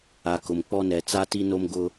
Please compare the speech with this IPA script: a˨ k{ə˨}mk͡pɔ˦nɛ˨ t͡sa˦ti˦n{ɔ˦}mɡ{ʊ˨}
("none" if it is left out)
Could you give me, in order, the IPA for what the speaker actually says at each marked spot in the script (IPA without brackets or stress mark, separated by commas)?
ʊ˨, o˦, ʊ˦